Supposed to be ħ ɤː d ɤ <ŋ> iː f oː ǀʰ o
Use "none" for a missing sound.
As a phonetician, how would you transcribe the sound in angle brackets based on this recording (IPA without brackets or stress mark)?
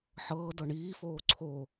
ɳ